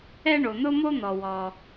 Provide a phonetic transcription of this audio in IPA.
ɛ˥ ɳ o˩ n̪ ʊ˥ m o˥ n̪ ɔ˩ w ɔ˩

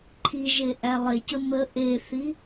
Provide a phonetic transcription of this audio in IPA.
ǃʰ i ʒ e ʔ æ lˠ e c ə m ə ʔ e θ i

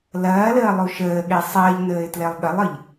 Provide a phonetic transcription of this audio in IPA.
l ɐː l əː lˠ u ʃ əː ɠ e sˤ əː ʎ n əː ɪ̯ t l e lˠ ɠ ə lˠ ɯ ʎ

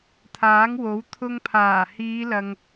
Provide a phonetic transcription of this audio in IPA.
t̪ʰ aː˨˥ ŋ w o˨˥ w t̪ʰ ʊ˧ ŋ pʰ aː˨˩ h iː˨˧ l ɐ˨ ŋ

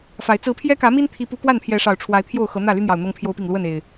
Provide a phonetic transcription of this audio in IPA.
f a˨˦ ɪ̯ t͡s ɹ̩˨˦ pʰ j ɛ˦ k ä˨˦ m i˦ n t̪ʰ i˦ p u˦ k w a˥˨ n pʰ j ɛ˨˦ ʂ ɑ˨˩ ʊ̯ ʈ͡ʂʰ w a˨˦ ɪ̯ t̪ʰ j o˥˨ ʊ̯ x ɤ˨˦ n̪ ä˥˨ l y˦ n̪ j ɑ˨˩ ʊ̯ n̪ ɤ˦ ŋ pʰ j o˦ ʊ̯ p i˥˨ ŋ l w ə˥˨ n e˨˩ ɪ̯

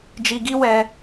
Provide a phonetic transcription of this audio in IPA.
d͡ʒ i˧ ɡ i˦ w ɛ˧

